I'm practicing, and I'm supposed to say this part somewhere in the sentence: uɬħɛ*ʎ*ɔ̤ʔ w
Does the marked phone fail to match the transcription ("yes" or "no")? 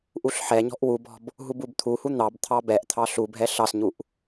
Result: yes